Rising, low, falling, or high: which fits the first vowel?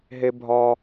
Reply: high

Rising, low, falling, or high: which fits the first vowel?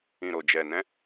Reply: low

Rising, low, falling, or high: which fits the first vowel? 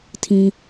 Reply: high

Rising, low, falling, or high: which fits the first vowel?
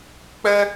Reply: high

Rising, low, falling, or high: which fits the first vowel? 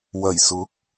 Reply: low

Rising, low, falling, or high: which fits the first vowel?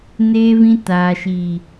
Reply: high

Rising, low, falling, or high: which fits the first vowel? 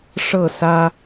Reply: falling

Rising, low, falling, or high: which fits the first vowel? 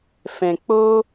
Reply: low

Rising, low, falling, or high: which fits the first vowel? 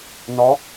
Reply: rising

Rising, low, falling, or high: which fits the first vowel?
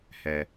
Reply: low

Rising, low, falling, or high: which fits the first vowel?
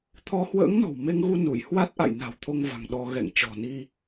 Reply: rising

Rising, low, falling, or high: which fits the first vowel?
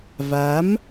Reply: rising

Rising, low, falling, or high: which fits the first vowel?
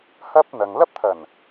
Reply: high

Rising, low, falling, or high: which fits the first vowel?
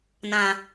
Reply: low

